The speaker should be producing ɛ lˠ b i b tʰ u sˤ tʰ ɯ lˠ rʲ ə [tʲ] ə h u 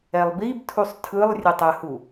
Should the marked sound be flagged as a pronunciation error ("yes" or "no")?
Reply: yes